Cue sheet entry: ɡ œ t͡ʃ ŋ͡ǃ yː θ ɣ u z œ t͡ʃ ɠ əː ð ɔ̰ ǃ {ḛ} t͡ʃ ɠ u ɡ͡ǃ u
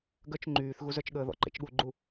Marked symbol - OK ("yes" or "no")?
yes